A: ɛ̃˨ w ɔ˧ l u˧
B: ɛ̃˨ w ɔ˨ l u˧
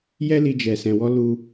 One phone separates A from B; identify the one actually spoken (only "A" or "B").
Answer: A